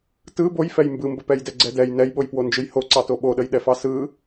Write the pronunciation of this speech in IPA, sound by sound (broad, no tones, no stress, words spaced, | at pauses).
tɯ bojfɛj mbɯmbəpɛj dɛɡ͡ǀɛdɛj nɛjɓojpwond͡ʒɯj hoǀɑto ɓoɗəjɗɛfɑ sɯ